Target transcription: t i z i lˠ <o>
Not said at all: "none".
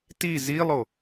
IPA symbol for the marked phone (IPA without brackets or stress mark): o